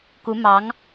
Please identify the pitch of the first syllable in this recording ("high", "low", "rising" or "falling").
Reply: rising